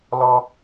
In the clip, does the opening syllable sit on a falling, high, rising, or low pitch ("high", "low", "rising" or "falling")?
high